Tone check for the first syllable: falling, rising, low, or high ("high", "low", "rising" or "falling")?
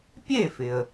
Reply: falling